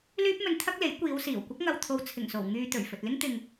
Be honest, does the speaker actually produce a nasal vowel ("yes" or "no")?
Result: no